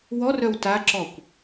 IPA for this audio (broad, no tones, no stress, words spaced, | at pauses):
wɔrœw taǁɔkʷ